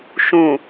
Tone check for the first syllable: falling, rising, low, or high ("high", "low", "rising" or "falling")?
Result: low